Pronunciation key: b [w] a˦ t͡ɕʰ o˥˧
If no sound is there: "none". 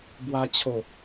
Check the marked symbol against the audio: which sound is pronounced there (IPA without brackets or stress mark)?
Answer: w